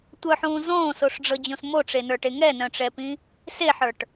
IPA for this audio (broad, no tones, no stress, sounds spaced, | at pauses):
tʷ œ ħ ũː z õː s o ʂ ɖ͡ʐ ɤ d͡ʑ õ s m o ʈ͡ʂ e n ə˞ ʈ e ŋ ɛ n œ̃ ʈ͡ʂ ɛ p ĩ | s e ħ ə˞ ʈ